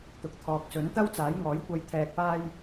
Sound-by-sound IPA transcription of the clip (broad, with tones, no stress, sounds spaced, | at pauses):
t̪ ʊ˨ k̚ t̪ʰ ɔː˨ k̚ s ɵ˨˥ n t̪ ɐ˥ w t͡s aː˨˥ j ŋ ɔː˨˥ j kʷ ɐ˧ j t̪ʰ ɛː˧ k̚ p aː˥ j